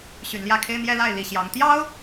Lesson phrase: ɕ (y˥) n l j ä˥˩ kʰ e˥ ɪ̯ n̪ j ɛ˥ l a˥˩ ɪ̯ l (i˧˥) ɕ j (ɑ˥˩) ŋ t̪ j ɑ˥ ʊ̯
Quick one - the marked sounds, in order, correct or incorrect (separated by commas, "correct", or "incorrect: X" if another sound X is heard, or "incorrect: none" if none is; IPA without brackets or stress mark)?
incorrect: y˨˩, incorrect: i˨˩, incorrect: ɑ˧˥